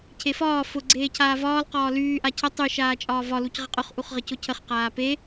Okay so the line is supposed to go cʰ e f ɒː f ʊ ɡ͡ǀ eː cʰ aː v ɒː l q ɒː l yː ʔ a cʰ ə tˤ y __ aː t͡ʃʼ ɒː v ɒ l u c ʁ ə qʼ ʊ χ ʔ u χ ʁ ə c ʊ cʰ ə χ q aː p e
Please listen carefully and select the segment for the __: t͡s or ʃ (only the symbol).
ʃ